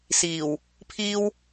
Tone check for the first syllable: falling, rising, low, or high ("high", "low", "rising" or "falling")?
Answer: low